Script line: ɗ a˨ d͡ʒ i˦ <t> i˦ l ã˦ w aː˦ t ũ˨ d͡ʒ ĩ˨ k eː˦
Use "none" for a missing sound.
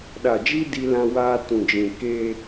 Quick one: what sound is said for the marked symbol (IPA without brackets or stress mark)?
d